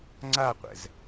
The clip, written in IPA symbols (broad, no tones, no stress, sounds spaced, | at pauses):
ŋ͡ǀ a qʷ ɛ̰ z